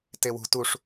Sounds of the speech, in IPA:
tewṳ tuʂ

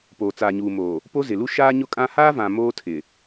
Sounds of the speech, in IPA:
poː˨t͡saː˨ɲuː˨moː˨ | po˦zɪ˨lu˦ ʃaː˦ɲʊ˦kʼã˦ haː˦vã˨ moː˦tʰɪ˨

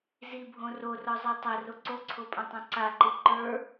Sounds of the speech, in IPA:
zibʱõ rorɔzˤɛ tˤɐro ǀoǀʰopʼɐ̃tˤõ ǀaǃɯ ǃə˞

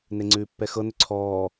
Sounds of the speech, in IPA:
neŋ͡ǀʉːpːɛxɤ nʏǀʰɔː

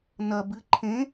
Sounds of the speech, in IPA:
nɐ bɨ ǃʰẽ

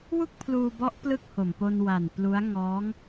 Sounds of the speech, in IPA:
wu˥˩k̚pʰluː˧bɔ˦˥ʔ plɯ˥˩k̚ ho˨˩mpo˧nwa˨˩n plu˦˥a̯ ŋɔː˦˥ŋ

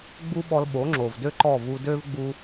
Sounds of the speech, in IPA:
ɡ͡bu˥ɓɔ˧l ɓo˩˥ŋ͡ǁo˩vdø˥ ǃɔ˥˩vu˧ dø˥vɡ͡bu˧

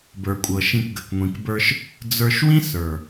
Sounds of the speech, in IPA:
bə˞˨kʷʼɤ˨ ʃĩ˧kɡə˨k ŋʷĩ˨kbə˞˧ʃ | d͡zə˞˧ʃ wĩ˦sə˞˨

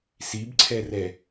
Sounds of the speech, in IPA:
sibǀʰɛrɛ

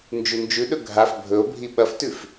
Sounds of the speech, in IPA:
nd͡ʒʉnd͡ʒʉɗɵ ɡʱaf bʱɵo̯bʱi ɓɐftʉf

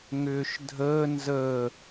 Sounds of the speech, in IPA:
ŋʏːʃdʱəː nzəː

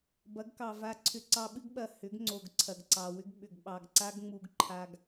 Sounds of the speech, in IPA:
bɐ˨˦ɡkɑ˨va˧ǀʰʏ˧ ǀɑ˧ɓɨ˦ɡɓɐ˨ hʏ˨˦ɡŋ͡ǀo˨ɡ ǀʰɐ˨ɡǀɑ˨wʏ˦ɡ ɓʏ˨ɡɓɑ˨ɡ ǀa˦ɡŋ͡mu˧ɡ ǃʰa˧ɡ

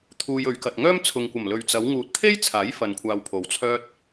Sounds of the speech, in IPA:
t̪ʰuː˧jɵ˨˧ɥkɐ˨t̚ ŋœː˥m t͡sʰʊ˨ŋkʷɐ˨˩mlɵ˨ɥ t͡sɐ˨˧w ŋuː˨t̚t̪ʰe˥jt͡sʰaː˨˥j fɐ˧nkʷʰaː˧wpʰo˨wt͡sʰœː˥t̚

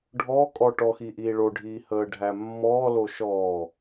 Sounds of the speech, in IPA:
ɖʱɔkʼɔ ʈɔxi ʔiːɭoɖʱiː həːɖʱæmːɔːlo ʃɔː

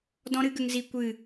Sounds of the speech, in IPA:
dɔ̃˦ɾɨ˦ɡə˧ŋ zi˧ kʷɨ˦˨

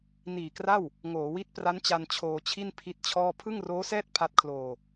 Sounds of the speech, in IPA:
niː˨˩kra˥˩w | ŋoː˩˦wi˦˥t̚pra˦˥nt͡ɕa˧n t͡ɕʰoː˧t͡ɕʰi˥˩n pʰi˦˥t̚t͡ɕʰɔː˥˩ pʰɯ˥˩ŋroː˦˥sɛː˥˩t̚ pʰa˦˥t̚kʰloː˧

